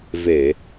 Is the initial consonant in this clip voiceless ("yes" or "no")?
no